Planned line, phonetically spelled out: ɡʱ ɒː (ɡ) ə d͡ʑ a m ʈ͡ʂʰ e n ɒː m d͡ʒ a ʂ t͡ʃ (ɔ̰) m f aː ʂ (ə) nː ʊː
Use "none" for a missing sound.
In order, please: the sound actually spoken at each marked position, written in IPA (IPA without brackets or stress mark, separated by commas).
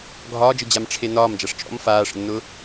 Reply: d͡ʒ, ɔ̰, ə̰